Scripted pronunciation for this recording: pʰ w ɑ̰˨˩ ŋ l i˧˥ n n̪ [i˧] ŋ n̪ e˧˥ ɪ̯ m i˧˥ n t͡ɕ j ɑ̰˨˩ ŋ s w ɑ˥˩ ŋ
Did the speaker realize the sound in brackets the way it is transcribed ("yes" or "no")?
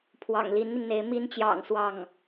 yes